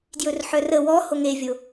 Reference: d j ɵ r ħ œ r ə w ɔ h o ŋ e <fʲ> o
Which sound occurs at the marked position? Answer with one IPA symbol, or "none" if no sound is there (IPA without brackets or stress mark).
vʲ